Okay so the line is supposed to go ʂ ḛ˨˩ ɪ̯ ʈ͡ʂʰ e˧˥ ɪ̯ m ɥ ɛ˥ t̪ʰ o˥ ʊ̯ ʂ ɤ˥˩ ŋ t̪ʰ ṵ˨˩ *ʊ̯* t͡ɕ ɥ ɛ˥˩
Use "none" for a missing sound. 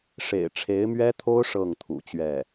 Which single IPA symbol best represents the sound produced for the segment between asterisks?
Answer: none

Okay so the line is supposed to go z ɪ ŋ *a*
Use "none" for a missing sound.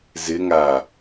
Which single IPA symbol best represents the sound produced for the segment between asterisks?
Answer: a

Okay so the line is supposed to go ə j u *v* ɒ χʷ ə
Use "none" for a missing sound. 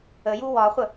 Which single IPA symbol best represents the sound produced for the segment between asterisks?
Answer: w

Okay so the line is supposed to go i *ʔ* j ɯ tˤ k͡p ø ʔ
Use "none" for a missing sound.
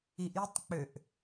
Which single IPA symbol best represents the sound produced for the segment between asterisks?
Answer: ʔ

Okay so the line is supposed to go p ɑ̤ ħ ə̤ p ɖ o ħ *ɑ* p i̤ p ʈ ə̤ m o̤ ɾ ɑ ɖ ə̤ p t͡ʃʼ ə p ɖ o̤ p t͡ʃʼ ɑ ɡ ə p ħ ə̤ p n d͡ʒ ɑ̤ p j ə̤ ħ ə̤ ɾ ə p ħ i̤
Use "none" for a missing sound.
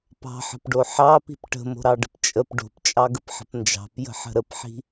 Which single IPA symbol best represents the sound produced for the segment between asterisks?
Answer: ɑ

